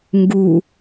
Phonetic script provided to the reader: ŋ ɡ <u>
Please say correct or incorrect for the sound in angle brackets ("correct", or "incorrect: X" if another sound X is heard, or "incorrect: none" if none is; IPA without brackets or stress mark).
correct